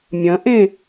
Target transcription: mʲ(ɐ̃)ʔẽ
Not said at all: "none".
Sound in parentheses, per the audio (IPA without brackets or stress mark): ɐ̃